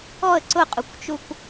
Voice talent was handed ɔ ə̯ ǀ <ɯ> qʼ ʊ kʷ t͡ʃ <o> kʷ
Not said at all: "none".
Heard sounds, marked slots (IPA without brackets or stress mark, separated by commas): ʊ, u